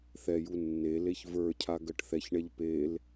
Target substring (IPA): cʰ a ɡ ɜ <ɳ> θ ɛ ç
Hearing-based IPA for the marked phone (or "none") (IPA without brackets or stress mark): ʈ